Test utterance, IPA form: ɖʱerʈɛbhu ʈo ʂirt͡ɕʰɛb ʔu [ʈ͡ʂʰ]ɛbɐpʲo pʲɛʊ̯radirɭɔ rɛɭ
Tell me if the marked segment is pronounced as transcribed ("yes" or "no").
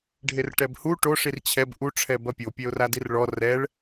yes